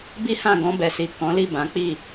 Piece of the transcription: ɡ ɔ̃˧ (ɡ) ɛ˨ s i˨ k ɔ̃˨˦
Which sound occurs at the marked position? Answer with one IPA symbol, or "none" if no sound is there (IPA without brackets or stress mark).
b